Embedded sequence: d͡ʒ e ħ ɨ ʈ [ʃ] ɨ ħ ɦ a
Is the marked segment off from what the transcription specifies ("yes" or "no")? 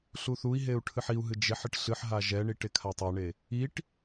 yes